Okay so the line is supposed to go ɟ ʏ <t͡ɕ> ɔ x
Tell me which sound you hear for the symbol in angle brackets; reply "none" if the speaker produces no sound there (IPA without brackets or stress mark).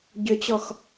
t͡ɕ